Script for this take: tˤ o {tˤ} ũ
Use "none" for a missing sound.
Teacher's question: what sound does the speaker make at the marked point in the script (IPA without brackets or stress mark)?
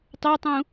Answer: tˤ